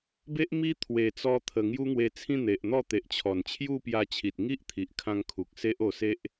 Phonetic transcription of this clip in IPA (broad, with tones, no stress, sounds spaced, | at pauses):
b e˦ ʔ m i˦ t̪ʰ w e˨˩ t͡s ɔ˧ t̪ʰ ə˨˩ ŋ j u˦ ŋ w e˧ t͡sʰ ĩ˥˧ n̪ e˨ ʔ n̪ ɔ˥˧ t̪ e˨ ʔ t͡ɕʰ ɔ˨˩ n t͡ɕʰ j u˥˧ p j a˧ t͡ɕʰ i˨ t̚ ŋ i˦ ʔ t̪ʰ i˨ ʔ kʰ ã˧ ŋ kʰ u˨ k̚ s e˦ ʔ o˧ s e˦ ʔ